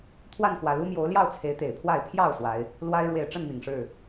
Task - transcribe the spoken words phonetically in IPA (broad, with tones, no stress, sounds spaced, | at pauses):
t̪ʰ w a˥˨ n k w ä˨˩ l u˦ m j o˨˦ ʊ̯ l j ɑ˥˨ ʊ̯ t͡sʰ e˨˦ ɪ̯ t̪ e˨˩ ɪ̯ pʰ w a˥˨ ɪ̯ pʰ j ɑ˥˨ ʊ̯ s w a˨˦ ɪ̯ | l w a˦ ɪ̯ ɻ w e˨˩ ɪ̯ ʈ͡ʂ ə˥˨ n m i˨˩ ŋ ʂ ɻ̩˥˨